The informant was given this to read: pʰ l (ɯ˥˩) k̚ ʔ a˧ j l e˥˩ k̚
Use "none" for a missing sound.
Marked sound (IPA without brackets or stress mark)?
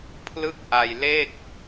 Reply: ɯ˥˩